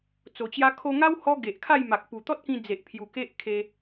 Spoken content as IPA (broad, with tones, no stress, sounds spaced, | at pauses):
t͡s o˨˩ t͡ɕ j a˦ kʰ o˧ ŋ a˦ w h ɔ˦ ɡ e˨ ʔ kʰ a˥˧ j m a˨ k̚ p u˨˩ t̪ ɔ˦ t̚ k ĩ˧ d͡z e˨ ʔ pʰ j u˨˩ k e˦ ʔ kʰ e˧